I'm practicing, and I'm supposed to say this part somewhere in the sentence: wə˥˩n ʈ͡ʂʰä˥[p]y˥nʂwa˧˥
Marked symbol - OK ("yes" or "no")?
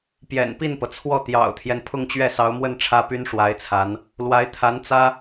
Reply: yes